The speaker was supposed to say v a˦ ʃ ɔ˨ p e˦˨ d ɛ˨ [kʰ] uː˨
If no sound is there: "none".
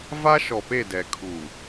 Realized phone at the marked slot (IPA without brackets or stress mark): kʰ